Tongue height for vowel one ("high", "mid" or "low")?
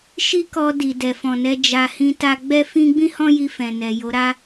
high